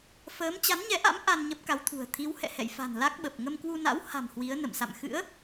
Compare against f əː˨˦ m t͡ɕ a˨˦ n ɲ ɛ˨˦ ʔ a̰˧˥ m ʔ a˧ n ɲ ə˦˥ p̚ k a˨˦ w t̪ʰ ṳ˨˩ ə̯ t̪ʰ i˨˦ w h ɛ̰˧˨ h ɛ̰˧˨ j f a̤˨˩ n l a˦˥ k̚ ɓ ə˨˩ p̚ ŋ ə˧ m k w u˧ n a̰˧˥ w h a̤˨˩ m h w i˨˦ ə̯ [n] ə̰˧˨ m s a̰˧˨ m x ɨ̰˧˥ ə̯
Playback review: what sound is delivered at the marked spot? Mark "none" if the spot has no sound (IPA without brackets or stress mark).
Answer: n